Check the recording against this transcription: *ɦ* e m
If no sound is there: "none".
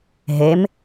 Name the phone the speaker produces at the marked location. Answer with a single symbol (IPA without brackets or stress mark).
ɦ